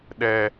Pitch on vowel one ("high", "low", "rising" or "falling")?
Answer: low